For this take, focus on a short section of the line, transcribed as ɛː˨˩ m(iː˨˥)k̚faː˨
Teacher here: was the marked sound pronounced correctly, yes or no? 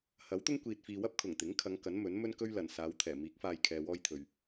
yes